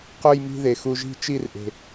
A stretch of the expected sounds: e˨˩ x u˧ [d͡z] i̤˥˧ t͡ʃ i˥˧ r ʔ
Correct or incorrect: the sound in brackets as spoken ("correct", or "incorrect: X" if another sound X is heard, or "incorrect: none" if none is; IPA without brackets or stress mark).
incorrect: ʒ